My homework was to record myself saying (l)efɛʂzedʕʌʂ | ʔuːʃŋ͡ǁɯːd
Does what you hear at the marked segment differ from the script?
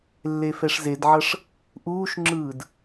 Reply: yes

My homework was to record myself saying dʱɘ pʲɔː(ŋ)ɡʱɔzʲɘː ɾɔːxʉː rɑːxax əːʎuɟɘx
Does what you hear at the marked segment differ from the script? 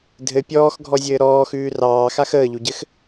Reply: yes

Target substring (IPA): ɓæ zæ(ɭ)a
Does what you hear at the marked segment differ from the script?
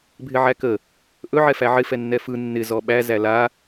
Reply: yes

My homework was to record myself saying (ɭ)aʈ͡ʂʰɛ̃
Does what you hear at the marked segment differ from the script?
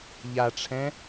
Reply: yes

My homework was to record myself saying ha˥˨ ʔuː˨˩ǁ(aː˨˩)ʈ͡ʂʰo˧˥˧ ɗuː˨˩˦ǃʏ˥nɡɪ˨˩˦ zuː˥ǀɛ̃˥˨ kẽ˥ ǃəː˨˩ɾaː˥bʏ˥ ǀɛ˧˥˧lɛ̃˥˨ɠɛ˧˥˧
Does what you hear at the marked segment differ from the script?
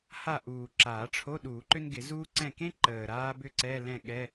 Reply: yes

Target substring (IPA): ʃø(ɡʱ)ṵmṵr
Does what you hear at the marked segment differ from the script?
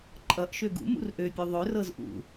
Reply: yes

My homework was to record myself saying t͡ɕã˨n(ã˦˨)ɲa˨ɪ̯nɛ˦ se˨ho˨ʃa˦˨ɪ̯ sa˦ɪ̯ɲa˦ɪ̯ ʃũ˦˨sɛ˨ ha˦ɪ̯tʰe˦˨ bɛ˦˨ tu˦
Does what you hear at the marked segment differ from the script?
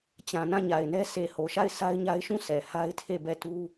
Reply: no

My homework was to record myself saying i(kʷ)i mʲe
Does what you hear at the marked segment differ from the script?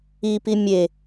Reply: yes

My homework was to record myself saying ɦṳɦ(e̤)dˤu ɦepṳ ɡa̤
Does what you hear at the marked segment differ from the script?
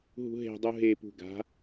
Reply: no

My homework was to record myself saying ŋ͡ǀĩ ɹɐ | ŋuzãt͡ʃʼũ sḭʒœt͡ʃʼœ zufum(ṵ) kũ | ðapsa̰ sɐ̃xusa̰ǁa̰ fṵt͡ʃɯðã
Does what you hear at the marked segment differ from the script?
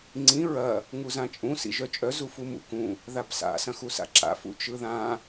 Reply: no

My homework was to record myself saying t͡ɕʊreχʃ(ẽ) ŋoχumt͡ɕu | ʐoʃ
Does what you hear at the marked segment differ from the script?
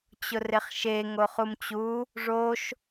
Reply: yes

